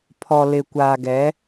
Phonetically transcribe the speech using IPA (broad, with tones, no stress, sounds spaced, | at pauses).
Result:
pʰ ɔ˨ l ɪ˨ kʷ aː˨ ɡ ɛ˨˦